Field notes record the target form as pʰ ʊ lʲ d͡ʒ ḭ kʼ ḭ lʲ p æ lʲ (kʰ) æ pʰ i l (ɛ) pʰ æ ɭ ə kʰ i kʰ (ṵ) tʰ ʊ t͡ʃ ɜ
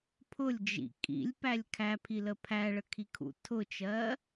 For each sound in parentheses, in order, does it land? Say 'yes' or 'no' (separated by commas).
yes, no, yes